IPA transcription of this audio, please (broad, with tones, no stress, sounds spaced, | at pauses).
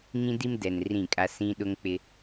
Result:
ŋ ĩ˦ d i˦ m d ɛ˨ n r ĩ˦˨ kʼ a˦ s ĩ˦ ɗ ʊ˦ ŋ k͡p ɪ˦